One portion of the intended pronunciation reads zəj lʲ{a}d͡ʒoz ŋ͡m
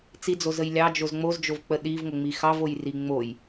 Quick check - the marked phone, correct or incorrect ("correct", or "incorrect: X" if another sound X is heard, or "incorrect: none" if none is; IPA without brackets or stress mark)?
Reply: incorrect: ɑ